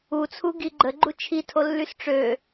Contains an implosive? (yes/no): no